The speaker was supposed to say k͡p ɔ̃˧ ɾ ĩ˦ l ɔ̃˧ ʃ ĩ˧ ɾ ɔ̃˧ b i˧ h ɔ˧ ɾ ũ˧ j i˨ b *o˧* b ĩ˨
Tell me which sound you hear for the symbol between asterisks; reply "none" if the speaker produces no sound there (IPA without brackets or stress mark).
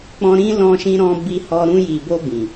o˧